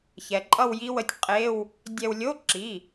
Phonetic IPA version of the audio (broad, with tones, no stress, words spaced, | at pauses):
çɛ˩˧ǃʼʌ˥˧wji˦˥wə˧˥˧tʲ qʼe˧˥˧w | dʲɛ˧wlʲo˧˥˧ ǁi˩˧˩